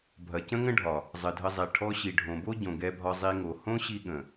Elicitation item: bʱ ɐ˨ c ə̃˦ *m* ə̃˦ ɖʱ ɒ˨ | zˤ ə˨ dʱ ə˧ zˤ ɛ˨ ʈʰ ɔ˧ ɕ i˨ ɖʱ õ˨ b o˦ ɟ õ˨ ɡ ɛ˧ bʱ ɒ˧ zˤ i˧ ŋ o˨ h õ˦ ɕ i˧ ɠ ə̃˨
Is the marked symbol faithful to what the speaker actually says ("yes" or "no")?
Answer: no